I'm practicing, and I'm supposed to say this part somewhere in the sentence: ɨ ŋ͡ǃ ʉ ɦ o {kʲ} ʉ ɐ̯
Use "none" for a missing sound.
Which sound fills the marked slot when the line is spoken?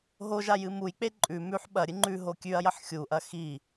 kʲ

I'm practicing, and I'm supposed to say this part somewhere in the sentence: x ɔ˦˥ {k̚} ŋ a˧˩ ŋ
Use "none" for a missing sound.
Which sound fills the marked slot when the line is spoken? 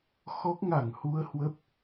k̚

